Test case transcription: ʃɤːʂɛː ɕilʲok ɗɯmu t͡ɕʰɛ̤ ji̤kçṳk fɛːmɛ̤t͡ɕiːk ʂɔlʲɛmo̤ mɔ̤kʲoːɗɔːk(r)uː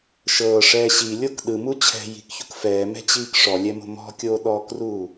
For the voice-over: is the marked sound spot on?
yes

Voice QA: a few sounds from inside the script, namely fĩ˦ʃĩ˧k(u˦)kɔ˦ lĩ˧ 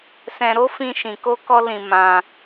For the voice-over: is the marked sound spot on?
no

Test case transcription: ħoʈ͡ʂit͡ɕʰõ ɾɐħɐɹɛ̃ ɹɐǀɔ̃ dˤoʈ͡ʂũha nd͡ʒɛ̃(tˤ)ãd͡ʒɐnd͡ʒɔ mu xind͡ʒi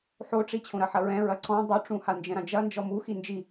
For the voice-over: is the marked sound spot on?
no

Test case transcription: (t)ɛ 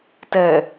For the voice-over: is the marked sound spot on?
yes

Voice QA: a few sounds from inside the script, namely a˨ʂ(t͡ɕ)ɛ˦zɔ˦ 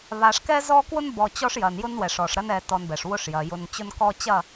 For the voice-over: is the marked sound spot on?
no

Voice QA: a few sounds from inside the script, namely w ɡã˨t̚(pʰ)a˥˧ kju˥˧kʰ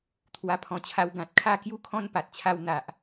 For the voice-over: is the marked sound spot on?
no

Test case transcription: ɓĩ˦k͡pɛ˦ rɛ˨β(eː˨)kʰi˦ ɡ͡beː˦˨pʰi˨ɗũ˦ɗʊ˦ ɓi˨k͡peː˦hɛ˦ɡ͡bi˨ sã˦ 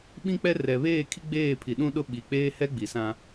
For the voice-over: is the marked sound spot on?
no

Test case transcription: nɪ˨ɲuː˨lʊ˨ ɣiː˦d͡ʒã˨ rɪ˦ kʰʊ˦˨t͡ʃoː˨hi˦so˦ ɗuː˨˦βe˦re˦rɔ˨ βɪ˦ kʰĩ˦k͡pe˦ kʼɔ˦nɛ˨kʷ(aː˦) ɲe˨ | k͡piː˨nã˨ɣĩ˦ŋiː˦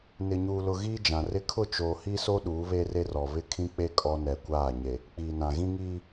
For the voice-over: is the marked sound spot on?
no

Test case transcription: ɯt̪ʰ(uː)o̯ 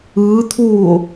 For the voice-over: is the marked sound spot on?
yes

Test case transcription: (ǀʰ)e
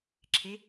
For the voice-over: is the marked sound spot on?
no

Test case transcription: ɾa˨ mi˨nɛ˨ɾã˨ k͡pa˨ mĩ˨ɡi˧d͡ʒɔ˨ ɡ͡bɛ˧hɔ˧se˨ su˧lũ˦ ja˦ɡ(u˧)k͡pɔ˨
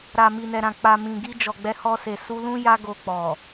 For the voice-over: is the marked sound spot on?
no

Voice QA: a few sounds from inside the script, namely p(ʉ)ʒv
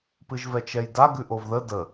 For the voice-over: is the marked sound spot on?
no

